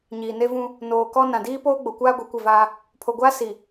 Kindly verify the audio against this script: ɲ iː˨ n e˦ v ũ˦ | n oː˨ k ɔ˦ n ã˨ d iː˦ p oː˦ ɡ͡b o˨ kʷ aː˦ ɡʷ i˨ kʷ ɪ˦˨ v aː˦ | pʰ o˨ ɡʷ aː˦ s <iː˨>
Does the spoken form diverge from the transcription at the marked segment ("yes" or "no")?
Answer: yes